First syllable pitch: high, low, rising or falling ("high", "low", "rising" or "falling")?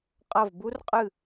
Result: falling